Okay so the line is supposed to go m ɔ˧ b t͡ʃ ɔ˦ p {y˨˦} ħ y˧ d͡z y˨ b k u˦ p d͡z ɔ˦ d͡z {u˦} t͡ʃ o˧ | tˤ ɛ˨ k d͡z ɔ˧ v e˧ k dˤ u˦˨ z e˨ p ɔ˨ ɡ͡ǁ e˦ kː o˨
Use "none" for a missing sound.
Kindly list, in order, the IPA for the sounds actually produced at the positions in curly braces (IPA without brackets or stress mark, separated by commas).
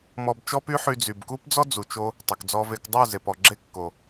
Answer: y˦, u˨